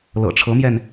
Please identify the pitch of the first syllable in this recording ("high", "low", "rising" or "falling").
low